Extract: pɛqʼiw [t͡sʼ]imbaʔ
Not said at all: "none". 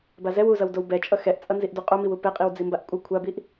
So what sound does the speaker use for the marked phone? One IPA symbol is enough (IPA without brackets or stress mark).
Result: d͡z